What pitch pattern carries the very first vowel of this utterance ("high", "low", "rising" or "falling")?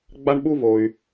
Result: high